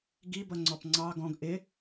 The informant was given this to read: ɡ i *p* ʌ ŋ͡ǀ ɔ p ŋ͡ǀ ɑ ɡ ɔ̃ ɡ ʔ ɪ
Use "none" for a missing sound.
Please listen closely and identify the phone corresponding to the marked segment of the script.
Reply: b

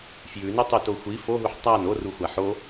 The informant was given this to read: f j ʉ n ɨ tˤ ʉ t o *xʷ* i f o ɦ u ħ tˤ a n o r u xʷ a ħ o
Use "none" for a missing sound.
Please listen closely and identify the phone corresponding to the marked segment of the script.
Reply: xʷ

